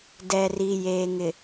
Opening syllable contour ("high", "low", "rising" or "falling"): low